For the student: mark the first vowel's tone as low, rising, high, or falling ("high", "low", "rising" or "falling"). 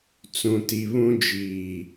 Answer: low